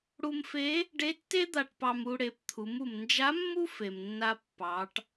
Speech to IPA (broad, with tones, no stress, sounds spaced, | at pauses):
ɽ u˧ m f e˧˥ | ɖ e˧˥ tː e˥ d̪ a˧ ʈ p ɑ˧ m u˧ ɽ e˩˧ p t̪ʰ u˩˧ m u˩ m n d͡ʒ a˧˥ mː u˥ f e˩ m nː a˧ pː ɑ˩˧ ʈ